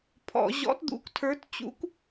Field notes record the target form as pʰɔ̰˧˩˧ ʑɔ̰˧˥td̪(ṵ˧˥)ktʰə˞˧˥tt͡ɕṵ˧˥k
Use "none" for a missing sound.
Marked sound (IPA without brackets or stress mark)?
ṵ˧˥